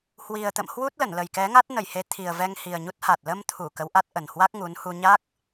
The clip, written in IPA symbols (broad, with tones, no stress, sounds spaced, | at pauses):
h w i˨˩ ə̯ t̪ ə̰˧˨ m h w u˦˥ t̚ l ə˧˩ n l ə˨˩ j k ɛ˨˦ ŋ a˦˥ t̚ n ə˧˩ j h e˨˦ t̪ʰ i˨˩ ə̯ v ɛ˧ ŋ h i˨˩ ə̯ ɲ u˦˥ t̚ h a˨˩ t̚ l ə˧ m t̪ʰ u˧˩ k ə˨˦ w ʔ a˦˥ t̚ ʔ ə˨˩ n h w a˦˥ k̚ ŋ u˨˦ n h u˧ ɲ a˦˥ k̚